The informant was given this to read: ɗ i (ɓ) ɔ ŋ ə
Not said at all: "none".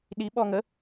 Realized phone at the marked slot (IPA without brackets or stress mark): ɓ